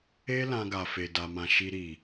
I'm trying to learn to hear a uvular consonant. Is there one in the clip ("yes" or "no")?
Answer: no